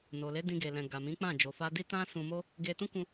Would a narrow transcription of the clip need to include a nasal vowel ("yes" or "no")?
yes